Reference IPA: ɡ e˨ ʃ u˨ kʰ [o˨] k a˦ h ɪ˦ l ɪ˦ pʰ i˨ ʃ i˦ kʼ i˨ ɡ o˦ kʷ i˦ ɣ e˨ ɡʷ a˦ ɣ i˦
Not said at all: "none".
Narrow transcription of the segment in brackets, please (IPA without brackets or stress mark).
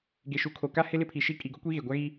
o˨